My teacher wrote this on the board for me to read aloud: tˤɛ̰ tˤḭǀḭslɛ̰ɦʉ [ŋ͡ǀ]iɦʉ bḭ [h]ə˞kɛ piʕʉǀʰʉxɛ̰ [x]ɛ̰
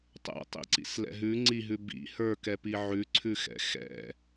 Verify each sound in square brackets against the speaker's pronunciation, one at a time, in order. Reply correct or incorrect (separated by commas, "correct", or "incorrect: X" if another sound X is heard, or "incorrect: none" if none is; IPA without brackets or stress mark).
correct, correct, correct